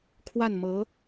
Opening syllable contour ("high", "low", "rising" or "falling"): falling